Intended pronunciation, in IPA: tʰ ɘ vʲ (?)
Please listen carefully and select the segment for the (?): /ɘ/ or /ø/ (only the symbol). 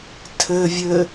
ɘ